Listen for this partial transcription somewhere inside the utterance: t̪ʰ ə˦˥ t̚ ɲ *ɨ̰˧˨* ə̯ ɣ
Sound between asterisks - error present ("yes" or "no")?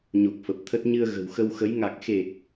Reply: yes